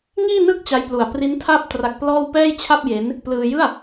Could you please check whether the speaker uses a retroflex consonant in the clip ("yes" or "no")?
no